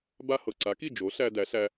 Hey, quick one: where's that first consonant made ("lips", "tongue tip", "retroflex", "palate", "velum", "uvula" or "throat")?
lips